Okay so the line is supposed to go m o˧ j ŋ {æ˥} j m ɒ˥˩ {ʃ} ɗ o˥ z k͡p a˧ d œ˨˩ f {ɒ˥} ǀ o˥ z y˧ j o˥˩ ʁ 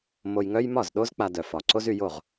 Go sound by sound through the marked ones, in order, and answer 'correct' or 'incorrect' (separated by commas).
incorrect, incorrect, incorrect